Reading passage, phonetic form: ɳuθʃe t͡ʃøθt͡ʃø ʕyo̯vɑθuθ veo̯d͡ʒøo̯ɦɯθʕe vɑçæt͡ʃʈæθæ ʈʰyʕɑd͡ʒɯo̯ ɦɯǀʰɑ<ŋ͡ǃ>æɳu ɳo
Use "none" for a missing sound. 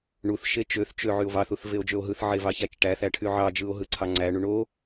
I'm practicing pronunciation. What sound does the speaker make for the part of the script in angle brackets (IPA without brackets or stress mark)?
ŋ͡ǀ